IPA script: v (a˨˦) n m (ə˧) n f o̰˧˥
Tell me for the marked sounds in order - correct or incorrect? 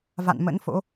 incorrect: a̰˧˨, incorrect: ə̰˧˥

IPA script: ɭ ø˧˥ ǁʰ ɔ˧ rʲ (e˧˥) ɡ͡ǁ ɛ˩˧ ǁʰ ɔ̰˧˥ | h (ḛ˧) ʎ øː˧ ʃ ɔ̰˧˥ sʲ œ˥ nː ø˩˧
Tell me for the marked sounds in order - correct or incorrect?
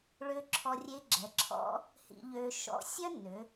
correct, incorrect: ḭ˧

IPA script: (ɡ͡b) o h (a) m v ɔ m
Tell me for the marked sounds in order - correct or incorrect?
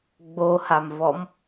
correct, correct

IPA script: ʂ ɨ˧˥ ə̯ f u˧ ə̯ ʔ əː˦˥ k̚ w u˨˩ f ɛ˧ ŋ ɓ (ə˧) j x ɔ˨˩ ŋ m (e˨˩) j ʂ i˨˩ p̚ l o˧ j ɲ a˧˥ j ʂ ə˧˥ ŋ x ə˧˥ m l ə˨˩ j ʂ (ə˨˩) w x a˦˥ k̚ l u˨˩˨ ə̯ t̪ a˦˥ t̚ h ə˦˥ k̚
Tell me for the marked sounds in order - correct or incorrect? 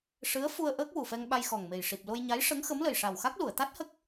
incorrect: a˧, correct, incorrect: a˨˩

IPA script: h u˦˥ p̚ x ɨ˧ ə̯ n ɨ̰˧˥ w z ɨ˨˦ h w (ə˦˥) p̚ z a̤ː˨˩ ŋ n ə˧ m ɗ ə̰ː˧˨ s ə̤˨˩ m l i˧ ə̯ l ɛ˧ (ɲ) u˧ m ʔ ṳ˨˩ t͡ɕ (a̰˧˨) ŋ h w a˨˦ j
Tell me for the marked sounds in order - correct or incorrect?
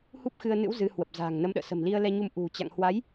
incorrect: ə˨˩, correct, correct

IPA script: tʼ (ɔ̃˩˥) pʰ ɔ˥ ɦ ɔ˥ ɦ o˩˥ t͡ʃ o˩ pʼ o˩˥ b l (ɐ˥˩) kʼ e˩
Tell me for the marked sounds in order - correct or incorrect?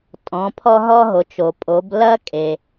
correct, incorrect: ɐ˥

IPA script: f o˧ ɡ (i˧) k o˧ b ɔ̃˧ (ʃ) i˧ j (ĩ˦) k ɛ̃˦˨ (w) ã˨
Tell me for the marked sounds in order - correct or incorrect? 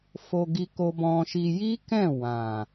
correct, correct, incorrect: i˦, correct

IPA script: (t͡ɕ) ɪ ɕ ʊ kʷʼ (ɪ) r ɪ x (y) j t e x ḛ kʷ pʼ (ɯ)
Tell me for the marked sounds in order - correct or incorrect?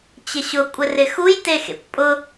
correct, correct, incorrect: u, incorrect: ʊ

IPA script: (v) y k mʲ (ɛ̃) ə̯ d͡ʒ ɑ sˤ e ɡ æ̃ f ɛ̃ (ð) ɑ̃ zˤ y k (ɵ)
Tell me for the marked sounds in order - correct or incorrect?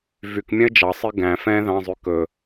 correct, correct, correct, correct

